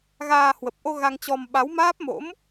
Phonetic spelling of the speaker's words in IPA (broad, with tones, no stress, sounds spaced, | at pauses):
ɣ aː˧ h w ə˨˩ p̚ ʔ o˧ ɣ a˧ ŋ t͡ɕ ɔ˧ m ɓ a˨˦ w m aː˦˥ p̚ m o̰˧˥ m